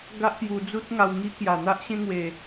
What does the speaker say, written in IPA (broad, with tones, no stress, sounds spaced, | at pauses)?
ɡ a˦ ʔ p j u˧ d͡z u˦ t̚ ŋ a˧ w ŋ i˦ k j a˨˩ n̪ a˦ ʔ ɕ ẽ˦ ŋ w e˨˩